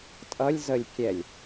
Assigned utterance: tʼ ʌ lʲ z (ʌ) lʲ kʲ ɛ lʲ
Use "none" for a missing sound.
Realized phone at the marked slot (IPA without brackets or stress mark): ə